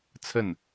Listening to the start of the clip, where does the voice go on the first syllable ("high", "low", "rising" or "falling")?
falling